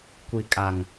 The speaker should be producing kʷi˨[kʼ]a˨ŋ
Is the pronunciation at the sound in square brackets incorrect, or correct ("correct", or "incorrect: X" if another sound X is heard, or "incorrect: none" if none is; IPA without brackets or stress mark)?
correct